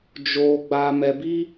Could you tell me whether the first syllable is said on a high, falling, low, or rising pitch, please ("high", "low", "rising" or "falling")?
low